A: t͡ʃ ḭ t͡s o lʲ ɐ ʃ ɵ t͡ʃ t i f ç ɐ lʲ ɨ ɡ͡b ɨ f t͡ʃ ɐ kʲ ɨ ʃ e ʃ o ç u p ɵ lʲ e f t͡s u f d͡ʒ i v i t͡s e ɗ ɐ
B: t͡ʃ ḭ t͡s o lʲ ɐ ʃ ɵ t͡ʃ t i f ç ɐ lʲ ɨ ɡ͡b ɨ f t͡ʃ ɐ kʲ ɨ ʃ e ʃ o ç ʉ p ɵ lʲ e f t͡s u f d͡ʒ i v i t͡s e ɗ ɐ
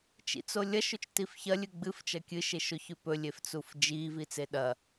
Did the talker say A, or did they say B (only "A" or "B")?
B